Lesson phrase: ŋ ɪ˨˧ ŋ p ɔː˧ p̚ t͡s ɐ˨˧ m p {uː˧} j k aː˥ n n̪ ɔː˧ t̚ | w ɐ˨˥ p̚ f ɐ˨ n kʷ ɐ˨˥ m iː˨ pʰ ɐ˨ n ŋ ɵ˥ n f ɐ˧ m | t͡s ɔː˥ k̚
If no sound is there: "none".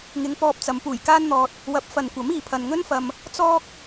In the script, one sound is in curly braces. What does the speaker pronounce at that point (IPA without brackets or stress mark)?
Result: uː˨˩